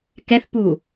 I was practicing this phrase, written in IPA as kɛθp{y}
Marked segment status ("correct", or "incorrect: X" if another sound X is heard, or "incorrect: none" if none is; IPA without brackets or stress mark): incorrect: u